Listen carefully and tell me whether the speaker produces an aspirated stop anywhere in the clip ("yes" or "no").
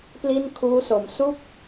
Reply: yes